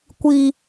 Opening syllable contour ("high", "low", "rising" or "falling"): high